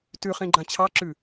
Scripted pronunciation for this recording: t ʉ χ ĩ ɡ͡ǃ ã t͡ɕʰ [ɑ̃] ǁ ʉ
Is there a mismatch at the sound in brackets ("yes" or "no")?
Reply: yes